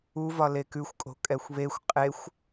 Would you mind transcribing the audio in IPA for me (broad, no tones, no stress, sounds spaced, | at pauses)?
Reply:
u v ɒ l e k ʉ xʷ kʼ o̤ kʼ ɛ xʷ β e xʷ qʼ e xʷ